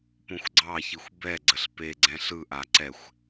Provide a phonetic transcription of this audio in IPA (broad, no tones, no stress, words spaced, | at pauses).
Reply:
põxʷɡ͡ǀɑçixʷ bɛ ɡ͡ǀəɬpeɡ͡ǀɛ̃ ɬɯʔa ǀɛxʷ